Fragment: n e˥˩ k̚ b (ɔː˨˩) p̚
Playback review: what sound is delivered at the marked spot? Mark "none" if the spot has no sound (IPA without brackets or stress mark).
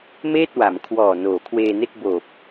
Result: oː˨˩